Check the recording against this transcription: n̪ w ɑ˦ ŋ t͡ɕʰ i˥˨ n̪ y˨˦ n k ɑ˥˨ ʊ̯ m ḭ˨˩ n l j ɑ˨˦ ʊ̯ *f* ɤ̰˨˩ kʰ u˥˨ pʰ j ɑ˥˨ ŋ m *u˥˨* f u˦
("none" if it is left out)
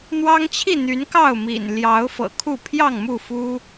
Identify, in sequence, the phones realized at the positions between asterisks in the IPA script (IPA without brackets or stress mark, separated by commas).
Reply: f, u˥˨